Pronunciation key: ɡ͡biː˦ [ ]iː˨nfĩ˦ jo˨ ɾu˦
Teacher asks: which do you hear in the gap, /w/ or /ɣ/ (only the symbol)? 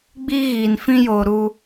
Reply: ɣ